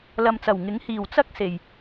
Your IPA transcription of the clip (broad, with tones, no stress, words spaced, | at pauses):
lɐ˨mt͡sɐ˨˩w ŋɪ˨˥ŋ hiː˨˩wt͡sɐ˥k̚se˨˩j